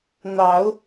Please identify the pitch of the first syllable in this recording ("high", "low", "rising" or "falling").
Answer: rising